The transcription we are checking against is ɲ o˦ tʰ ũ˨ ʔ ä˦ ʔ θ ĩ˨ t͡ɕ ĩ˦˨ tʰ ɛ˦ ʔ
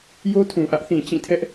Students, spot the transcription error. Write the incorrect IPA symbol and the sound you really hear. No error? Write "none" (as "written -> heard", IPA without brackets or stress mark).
ɲ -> j